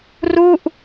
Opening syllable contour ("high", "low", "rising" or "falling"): falling